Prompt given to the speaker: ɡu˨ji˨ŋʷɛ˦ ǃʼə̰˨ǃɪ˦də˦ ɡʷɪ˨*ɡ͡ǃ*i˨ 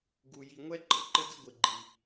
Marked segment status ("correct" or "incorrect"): correct